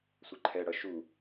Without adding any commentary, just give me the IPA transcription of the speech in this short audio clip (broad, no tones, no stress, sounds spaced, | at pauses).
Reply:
sʷ ɛ ǃʰ ɛ ɽ ʌ ʃ u